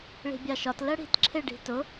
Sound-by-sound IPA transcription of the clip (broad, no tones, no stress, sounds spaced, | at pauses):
ɭ i̤ bʲ ɑ ʃ ɒ t l ɜ ɽ i̤ t ǁʰ ɪ ɖ i̤ t ʊ